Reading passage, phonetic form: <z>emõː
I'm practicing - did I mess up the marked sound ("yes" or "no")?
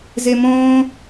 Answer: no